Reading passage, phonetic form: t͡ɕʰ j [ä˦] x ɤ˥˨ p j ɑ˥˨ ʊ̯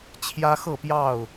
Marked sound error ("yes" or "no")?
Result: no